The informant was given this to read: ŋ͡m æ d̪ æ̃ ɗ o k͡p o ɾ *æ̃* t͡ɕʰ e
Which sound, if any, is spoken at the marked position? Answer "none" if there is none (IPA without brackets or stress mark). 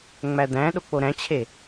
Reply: æ̃